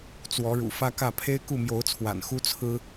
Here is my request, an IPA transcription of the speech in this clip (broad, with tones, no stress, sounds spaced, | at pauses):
t͡s w ɔ˨˦ ɻ ṵ˨˩ f ä˦ k ä˥˨ pʰ e˦ ɪ̯ k u˥˨ m j o˨˦ ʊ̯ t͡sʰ w a̰˨˩ n x u˦ t͡sʰ ɹ̩˦